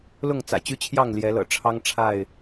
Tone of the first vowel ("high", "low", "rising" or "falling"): falling